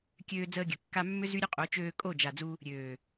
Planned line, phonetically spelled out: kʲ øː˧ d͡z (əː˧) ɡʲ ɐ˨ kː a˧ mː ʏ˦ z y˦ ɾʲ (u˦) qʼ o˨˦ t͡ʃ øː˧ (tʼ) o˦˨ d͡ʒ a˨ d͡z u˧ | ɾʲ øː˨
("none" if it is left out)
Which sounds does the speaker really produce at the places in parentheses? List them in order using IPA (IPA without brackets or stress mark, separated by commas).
əː˧, ʊ˦, kʼ